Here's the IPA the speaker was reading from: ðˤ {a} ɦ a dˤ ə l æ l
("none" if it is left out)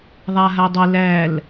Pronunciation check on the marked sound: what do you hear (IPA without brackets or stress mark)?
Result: a